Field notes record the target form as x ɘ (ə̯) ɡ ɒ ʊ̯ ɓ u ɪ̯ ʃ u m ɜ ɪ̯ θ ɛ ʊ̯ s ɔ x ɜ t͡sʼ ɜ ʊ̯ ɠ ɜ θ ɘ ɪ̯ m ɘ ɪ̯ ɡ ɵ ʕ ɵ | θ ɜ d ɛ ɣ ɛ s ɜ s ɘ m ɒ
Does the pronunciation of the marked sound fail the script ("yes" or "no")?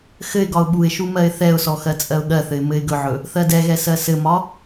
yes